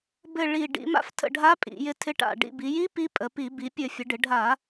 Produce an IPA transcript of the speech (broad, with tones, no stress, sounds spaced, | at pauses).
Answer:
b ɘ˧˩ ɭ i˧˩ ɖ ḭ˩˧ m a̰˧˥ f tʰ ə̰˧˩ ɖʱ a˧˥ pʼ ḭ˩˧ j ɪ˧˥ tʰ ɪ˧˥ ʈ a̰˧˩ ɖ ḭ˧˩ b i˩˧ j i˧˥ p i˧˥ pʼ ə˩˧ p i˧˩˧ b i˩˧ pʲ ɘ˧˩˧ fʲ ə˩˧ ɖ ɪ˩˧ ɖʱ a˧˩˧